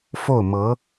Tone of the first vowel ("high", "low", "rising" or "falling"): falling